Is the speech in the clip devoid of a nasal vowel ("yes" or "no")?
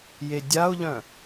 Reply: no